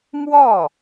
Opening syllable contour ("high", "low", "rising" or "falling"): falling